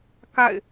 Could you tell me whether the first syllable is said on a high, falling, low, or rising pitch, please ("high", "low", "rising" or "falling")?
falling